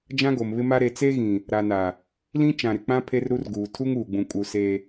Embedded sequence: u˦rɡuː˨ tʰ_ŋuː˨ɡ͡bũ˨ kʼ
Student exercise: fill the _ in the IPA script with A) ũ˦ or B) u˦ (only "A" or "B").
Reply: B